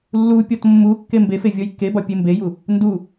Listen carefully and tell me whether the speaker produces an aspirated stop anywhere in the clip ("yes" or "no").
no